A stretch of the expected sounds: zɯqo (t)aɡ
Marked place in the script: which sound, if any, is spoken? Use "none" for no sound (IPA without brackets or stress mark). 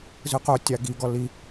tʲ